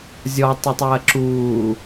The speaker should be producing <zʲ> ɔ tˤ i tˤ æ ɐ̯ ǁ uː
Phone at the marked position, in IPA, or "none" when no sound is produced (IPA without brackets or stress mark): zʲ